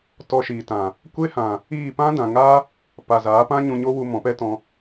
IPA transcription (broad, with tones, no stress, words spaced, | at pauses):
tɔ˧ʃiː˨tã˨ | kʷe˦hã˨ | iː˦˨ pã˦dã˨ ŋa˦ | pa˨zaː˨˦pã˦ɲũ˧ ɲo˦wu˧ mɔ̃˨˦pɛ˦tɔ̃˧